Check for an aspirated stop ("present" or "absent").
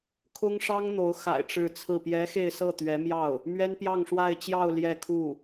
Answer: present